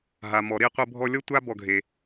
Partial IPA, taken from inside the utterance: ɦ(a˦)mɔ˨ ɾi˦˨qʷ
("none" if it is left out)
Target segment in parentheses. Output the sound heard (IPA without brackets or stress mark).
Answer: a˨